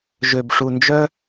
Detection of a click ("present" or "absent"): absent